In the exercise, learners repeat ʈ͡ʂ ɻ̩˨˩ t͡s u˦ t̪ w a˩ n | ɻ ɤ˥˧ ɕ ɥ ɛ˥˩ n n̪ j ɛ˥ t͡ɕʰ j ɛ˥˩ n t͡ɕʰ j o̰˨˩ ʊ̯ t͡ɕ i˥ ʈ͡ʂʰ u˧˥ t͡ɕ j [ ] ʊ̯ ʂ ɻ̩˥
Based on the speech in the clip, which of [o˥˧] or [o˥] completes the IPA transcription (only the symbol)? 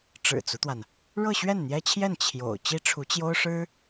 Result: o˥